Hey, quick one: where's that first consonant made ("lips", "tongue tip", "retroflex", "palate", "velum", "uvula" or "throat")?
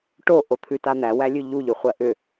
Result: retroflex